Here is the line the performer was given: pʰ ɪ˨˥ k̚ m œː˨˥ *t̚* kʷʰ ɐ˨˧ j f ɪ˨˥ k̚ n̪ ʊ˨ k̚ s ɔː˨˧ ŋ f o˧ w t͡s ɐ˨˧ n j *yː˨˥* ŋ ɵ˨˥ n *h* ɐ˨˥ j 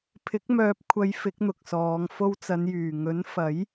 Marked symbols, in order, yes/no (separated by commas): no, no, no